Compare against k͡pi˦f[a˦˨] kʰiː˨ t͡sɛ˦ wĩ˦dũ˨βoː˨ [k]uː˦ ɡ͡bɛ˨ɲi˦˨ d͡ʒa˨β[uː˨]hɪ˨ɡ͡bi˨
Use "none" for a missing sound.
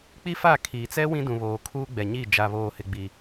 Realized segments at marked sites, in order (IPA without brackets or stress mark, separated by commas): a˦˨, kʰ, oː˨